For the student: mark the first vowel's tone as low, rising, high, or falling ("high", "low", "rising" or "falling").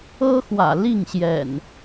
high